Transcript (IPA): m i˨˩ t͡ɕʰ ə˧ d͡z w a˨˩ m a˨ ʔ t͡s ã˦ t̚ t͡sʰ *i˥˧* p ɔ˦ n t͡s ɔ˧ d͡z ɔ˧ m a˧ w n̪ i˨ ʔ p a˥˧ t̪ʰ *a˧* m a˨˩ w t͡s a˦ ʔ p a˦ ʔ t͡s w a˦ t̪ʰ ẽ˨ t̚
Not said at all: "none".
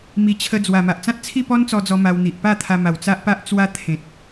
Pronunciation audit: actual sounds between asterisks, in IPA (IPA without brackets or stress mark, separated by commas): i˥˧, a˧